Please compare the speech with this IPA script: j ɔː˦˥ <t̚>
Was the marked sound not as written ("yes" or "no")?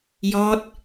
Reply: no